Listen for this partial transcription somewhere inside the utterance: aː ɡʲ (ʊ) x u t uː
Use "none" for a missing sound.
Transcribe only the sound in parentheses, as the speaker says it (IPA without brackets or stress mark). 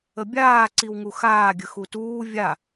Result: ə